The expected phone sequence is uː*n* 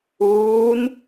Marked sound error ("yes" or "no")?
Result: no